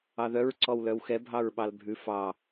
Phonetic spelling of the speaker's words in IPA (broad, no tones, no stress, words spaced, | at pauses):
ɑðœɹ ǀɔwlœwxɛ bʱɑɹɓɑlbʱʉ fɑ